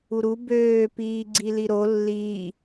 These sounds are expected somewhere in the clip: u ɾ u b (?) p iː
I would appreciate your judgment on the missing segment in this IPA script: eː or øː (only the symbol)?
øː